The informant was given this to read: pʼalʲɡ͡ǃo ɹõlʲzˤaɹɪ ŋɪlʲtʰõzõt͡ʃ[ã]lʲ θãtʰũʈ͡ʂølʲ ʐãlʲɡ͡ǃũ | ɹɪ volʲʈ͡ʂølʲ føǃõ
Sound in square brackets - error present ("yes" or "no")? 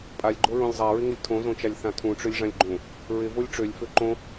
yes